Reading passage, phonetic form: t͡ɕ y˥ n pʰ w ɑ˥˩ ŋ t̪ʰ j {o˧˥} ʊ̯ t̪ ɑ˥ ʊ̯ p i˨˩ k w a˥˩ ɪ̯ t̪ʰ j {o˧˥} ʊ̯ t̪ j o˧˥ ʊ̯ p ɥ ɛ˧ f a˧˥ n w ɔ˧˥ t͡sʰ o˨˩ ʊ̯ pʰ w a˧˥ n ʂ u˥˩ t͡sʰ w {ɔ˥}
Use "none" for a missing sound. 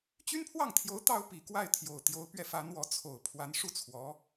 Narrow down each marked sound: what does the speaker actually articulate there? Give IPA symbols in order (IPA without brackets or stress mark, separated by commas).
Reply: o˧˥, o˨˩, ɔ˧˥